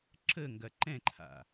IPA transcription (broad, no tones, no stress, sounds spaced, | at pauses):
ǁ ə ŋ ɡ ɐ ǃ ɛ̃ ǃʰ a̰